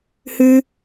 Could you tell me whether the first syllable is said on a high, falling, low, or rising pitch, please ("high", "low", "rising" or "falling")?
high